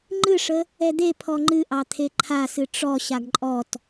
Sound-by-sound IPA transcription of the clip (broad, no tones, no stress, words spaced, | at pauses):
ŋ͡ǃɨʂə | ɛd̪e pʰɔŋ͡ǃɨʔɑ t̪ʰeǃʰasɨ ʈ͡ʂɔ ɕaɡǃʼɔt